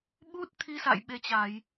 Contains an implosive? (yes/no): yes